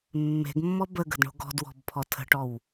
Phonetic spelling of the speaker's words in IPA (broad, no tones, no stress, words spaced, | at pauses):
mːe̤ɡmːɔ bəɡə̤dɳo̤ ɡɔ̤dwɔ̤bpʰɔ tʰə̤ʈɔw